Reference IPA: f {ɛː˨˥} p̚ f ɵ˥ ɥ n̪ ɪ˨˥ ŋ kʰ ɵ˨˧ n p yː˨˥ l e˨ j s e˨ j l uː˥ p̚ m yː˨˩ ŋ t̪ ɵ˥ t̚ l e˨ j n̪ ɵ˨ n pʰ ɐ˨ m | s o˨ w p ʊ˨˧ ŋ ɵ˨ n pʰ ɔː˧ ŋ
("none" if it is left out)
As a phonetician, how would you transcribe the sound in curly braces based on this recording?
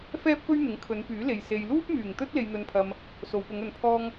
ɛː˥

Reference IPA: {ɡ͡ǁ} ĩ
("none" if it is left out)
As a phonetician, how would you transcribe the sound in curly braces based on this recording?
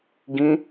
ɡ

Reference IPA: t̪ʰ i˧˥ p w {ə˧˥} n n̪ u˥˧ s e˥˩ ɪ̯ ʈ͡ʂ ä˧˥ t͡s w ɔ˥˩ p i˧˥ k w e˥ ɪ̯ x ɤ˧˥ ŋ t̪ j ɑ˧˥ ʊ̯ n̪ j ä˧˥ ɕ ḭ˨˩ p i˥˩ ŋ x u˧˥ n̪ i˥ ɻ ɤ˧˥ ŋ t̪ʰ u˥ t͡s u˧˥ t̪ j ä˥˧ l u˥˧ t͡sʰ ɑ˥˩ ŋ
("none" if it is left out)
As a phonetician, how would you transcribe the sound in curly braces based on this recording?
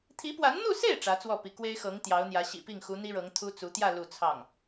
a˧˥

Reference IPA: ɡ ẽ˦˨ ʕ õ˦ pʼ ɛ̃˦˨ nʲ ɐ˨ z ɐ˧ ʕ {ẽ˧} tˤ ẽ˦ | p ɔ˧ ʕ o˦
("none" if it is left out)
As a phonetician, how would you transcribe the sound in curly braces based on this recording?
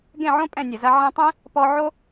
ẽ˧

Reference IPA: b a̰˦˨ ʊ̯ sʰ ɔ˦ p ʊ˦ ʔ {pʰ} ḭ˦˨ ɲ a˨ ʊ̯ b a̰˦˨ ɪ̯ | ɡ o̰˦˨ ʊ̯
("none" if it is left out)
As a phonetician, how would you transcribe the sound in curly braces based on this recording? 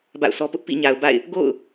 p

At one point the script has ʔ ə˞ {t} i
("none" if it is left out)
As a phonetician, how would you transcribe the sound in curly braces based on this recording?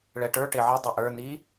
n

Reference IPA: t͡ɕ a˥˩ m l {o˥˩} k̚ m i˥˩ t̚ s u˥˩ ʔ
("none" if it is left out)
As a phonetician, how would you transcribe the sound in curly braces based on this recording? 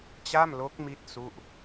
o˦˥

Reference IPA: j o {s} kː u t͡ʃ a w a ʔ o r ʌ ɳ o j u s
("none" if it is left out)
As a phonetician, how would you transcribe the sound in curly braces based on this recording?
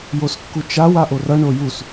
s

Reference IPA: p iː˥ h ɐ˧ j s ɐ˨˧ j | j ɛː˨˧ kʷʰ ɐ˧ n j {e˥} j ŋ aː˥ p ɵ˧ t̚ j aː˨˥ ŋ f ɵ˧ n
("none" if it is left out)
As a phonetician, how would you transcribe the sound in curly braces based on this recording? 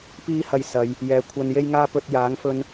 e˥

